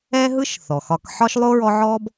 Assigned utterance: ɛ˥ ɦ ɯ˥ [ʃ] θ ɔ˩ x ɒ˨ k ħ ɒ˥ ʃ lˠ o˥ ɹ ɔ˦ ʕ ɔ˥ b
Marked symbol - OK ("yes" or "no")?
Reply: yes